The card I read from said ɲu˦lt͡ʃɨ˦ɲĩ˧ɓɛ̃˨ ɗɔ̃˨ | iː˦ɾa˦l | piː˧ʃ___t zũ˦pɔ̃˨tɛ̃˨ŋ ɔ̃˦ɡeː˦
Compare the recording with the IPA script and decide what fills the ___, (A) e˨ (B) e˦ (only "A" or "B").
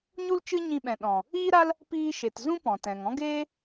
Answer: A